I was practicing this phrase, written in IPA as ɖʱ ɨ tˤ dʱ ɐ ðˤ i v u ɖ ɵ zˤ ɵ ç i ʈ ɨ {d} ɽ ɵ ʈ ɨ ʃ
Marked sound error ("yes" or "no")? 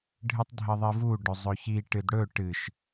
no